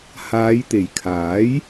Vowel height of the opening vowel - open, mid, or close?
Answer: open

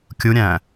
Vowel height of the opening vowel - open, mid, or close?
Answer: close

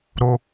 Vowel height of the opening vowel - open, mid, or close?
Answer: mid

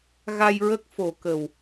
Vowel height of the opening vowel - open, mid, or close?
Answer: open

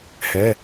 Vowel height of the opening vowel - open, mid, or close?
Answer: mid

